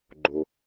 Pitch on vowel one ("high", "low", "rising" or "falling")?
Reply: low